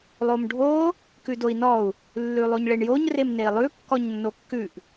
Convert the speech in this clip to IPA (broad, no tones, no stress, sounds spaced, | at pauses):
lˠ o m ɖʱ o | k ʉ d o i̯ n ɔ u̯ | lː ʉ lˠ o ɲ ɭ e ɳ j o ɲ r e m n e i̯ lˠ ʉ kː ɔ ɲ nː o kː ʉ ʔ